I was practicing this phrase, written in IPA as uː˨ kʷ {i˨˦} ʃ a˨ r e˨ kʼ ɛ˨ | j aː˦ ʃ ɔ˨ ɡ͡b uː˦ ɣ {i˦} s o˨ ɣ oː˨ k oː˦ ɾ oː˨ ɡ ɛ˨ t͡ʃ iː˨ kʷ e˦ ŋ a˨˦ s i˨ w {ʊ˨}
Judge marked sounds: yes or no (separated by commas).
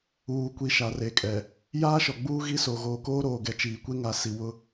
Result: yes, yes, no